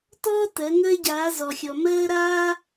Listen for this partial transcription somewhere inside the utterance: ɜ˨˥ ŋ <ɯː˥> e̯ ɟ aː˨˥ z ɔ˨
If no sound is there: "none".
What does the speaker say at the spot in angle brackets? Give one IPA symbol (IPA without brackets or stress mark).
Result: əː˥